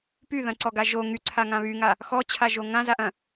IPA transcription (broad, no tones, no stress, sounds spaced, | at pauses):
p y ð ɐ̃ ǀ ɔ ɡ a ʒ o ŋ y ǀʰ a ŋ ã β y ŋ a | x ɔ t͡ɕʰ a ʒ o ŋ ã z a ʔ ɐ̃